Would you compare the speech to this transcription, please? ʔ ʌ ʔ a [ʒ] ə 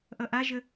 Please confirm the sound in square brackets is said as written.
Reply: yes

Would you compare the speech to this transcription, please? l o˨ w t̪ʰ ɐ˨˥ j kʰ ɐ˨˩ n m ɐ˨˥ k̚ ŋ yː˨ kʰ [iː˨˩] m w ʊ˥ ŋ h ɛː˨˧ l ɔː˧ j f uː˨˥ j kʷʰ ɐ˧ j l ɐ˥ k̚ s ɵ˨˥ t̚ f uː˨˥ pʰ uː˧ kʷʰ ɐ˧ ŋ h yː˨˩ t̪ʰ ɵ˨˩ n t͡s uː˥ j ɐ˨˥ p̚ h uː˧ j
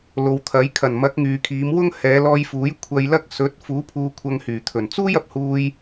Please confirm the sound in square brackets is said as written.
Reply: no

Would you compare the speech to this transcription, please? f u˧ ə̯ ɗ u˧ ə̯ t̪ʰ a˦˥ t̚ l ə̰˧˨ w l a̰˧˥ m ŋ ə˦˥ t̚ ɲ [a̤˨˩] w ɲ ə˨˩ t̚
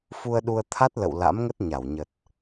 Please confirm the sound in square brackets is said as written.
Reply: no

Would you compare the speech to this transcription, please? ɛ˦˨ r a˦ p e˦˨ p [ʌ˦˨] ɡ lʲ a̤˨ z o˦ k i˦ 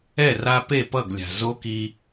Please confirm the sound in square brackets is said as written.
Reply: yes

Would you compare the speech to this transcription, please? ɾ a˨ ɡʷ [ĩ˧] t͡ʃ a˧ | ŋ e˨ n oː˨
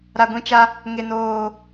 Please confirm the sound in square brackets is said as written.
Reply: yes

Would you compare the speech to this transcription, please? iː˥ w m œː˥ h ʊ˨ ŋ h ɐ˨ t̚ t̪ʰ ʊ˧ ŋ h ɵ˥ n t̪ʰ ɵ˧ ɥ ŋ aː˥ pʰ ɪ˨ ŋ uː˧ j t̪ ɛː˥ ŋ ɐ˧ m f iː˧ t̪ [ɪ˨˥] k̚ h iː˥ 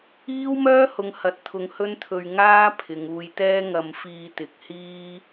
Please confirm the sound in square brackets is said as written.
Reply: yes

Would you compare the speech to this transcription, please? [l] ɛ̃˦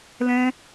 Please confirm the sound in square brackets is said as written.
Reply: yes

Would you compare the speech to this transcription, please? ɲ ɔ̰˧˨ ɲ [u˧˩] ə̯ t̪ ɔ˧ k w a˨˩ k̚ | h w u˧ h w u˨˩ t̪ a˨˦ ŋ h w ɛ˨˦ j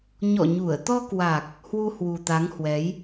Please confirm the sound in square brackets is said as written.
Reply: yes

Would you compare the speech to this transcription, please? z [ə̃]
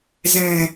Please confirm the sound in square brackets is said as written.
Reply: no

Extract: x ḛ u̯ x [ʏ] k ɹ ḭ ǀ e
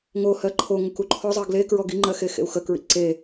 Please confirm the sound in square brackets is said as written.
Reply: no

